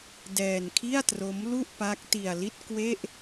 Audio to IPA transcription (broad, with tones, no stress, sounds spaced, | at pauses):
d ɛː˧ n kʰ i˥˩ a̯ t r o˦˥ m l u˥˩ ʔ p a˦˥ k̚ t i˧ a̯ l i˥˩ t̚ k w e˥˩ ʔ